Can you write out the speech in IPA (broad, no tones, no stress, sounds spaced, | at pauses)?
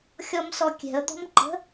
xʲ ɔ m s ɔ kʲ ɛ̤ ə̯ d̪ ɔ̤ m ǃ ə̤